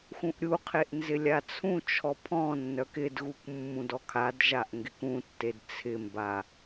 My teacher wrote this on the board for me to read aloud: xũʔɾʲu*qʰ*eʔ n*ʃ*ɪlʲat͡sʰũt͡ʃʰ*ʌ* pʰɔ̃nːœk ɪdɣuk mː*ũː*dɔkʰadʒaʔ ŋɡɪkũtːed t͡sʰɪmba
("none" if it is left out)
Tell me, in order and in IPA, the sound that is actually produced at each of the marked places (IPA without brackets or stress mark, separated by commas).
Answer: qʰ, z, ɔ, ũ